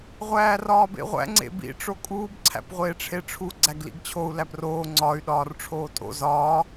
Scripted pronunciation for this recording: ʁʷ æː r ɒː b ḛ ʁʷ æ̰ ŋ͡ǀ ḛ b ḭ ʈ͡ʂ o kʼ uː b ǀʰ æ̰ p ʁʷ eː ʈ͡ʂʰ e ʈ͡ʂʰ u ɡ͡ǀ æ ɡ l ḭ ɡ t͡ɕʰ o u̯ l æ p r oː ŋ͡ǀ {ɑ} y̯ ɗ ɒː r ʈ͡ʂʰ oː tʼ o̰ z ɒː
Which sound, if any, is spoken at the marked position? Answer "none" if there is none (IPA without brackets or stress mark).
ɒ